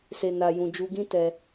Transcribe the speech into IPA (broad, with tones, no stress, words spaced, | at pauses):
se˨ na˨jũ˨ d͡ʒu˧ɡĩ˦ tɛ˧